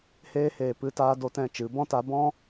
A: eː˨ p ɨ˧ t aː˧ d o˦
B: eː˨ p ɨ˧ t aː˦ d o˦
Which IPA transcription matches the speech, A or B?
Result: A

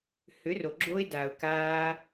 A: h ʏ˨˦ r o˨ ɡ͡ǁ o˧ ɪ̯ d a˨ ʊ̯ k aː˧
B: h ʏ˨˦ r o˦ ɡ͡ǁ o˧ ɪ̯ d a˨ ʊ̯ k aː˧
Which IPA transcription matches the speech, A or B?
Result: A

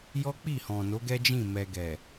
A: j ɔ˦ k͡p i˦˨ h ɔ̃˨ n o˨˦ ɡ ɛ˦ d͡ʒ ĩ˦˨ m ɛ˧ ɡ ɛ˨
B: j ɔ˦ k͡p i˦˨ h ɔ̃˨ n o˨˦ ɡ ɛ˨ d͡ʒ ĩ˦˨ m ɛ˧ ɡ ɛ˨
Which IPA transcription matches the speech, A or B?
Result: A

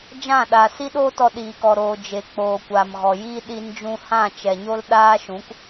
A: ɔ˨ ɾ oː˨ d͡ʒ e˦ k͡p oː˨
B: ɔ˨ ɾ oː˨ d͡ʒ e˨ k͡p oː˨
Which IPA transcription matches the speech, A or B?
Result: B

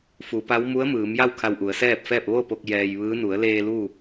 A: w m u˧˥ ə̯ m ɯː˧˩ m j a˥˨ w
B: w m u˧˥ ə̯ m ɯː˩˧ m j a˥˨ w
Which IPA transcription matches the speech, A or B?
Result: B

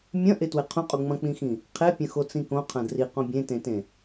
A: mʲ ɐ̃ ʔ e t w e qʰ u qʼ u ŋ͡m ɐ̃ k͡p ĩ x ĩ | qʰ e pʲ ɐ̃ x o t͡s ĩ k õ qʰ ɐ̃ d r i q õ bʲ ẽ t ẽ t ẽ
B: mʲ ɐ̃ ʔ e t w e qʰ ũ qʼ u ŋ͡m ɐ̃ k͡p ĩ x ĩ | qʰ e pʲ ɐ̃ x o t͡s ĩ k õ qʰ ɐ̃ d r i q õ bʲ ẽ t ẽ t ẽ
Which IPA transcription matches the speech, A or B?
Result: B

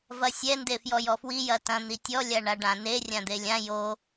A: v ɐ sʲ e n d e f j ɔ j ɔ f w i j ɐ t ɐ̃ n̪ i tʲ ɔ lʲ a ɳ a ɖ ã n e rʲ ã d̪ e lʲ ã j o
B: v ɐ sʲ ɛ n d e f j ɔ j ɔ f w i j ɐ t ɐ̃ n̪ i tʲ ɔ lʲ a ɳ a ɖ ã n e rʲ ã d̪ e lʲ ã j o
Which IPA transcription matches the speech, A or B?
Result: B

